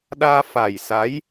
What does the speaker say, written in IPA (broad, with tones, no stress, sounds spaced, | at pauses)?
ɗ aː˧ f a˨˩ j s a˨˦ j